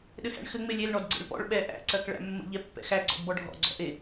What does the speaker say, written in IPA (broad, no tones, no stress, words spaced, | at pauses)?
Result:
ɗɘhæ̰ɳxɘ ŋ͡melʲel ɳɔdɡ͡ǀḛɭpɔ̰ɭ ɓɛ ʔæ̰ ǀɜkɭæ̰mːə̰ ʎɛpːɛ̰xæ ɡ͡ǀɔ̰dbɔɖʱɔ̰ ɡ͡ǀɔ̰ʔe